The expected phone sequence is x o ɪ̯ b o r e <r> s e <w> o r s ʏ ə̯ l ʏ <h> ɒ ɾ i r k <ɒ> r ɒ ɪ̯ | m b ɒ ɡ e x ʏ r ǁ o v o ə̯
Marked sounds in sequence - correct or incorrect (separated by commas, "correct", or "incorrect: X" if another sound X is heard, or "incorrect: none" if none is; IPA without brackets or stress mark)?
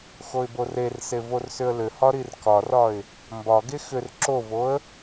correct, incorrect: v, correct, correct